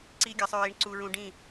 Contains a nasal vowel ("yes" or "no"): yes